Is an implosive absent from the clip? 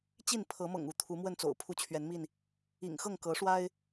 yes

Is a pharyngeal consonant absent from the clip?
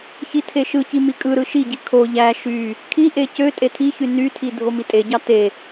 yes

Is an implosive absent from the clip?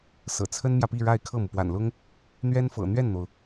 yes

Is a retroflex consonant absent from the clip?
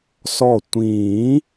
yes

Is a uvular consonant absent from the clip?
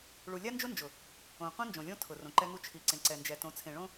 no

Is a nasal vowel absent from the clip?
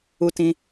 no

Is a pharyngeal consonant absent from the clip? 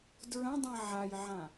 no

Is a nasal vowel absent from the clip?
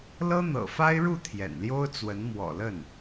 yes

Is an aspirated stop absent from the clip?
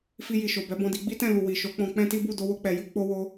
yes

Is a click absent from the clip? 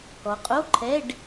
no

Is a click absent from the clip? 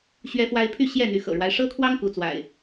yes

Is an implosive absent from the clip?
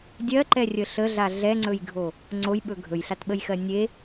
no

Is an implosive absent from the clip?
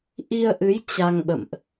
no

